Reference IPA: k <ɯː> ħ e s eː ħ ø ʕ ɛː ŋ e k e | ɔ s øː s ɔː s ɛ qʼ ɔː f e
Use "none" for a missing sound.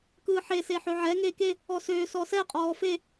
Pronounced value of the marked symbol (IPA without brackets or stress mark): ɯː